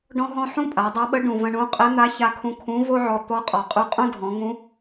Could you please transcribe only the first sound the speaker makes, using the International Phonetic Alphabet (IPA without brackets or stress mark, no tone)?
ɖ